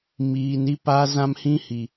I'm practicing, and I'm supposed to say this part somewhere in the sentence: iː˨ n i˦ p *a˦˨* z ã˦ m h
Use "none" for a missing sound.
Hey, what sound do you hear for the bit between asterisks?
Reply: a˦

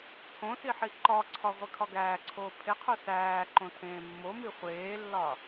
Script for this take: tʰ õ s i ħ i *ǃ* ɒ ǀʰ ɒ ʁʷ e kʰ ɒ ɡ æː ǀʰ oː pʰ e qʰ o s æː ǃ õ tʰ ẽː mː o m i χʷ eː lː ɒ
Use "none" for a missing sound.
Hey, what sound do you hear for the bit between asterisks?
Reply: ǃ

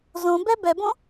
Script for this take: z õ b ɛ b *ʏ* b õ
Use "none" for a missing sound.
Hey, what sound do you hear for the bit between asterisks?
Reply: ɛ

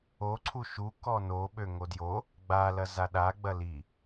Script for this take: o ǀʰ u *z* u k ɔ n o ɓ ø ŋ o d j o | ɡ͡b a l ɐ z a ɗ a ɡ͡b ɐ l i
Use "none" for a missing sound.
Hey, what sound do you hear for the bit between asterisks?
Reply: ʃ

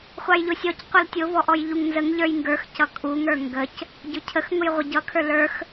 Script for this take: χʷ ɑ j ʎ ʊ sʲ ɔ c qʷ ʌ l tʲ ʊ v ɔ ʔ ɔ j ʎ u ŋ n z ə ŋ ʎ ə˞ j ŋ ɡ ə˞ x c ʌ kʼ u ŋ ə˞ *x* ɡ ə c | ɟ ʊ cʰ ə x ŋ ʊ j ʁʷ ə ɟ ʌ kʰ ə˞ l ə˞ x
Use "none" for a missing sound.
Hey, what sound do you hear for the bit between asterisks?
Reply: ŋ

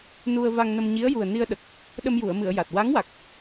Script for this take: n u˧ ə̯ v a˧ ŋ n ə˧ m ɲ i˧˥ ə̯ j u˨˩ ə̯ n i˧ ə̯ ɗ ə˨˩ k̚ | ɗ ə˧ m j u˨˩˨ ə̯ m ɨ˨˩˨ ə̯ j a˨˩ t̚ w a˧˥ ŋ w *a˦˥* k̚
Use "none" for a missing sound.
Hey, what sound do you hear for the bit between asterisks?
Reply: a˨˩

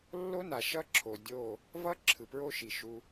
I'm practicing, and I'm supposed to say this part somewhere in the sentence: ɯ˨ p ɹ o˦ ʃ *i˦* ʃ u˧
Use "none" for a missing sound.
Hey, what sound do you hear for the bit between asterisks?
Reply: i˨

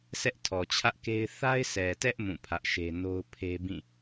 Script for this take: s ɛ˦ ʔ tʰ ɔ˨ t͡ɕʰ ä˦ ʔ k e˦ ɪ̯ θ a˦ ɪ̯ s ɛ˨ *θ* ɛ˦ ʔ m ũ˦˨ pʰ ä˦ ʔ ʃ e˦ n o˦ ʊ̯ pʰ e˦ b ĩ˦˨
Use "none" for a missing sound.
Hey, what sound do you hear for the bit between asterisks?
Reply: t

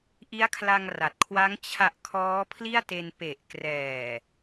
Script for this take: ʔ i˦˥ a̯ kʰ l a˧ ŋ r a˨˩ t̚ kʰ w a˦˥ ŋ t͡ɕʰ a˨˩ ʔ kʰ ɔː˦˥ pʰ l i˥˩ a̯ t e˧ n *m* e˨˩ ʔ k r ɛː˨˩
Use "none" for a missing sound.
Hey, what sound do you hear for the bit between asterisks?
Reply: p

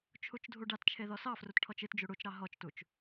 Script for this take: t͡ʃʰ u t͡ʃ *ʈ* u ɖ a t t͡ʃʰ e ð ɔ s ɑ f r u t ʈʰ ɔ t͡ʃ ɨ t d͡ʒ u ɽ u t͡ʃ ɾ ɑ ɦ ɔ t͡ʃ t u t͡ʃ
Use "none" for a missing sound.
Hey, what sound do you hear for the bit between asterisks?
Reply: dʱ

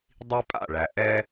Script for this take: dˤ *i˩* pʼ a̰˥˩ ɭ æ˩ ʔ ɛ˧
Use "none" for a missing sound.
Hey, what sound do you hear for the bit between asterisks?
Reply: i˧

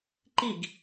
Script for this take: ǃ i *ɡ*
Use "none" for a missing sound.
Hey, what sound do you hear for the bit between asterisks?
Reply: ɡ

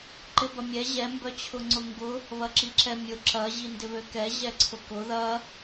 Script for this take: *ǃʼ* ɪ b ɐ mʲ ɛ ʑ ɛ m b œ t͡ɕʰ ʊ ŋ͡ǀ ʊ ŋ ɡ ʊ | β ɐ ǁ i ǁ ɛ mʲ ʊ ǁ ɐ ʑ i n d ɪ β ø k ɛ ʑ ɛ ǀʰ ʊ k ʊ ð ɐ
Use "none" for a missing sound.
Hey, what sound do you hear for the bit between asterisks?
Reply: ǃ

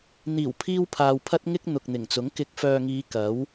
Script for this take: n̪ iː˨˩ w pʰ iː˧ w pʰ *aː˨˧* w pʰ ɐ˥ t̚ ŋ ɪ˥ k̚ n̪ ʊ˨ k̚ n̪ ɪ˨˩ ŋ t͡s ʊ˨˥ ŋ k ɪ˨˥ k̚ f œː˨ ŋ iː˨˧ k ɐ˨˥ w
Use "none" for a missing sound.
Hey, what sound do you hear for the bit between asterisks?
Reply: aː˨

